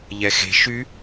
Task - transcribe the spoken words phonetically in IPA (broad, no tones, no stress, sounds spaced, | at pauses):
ʎ ɛ x e̤ ʃ y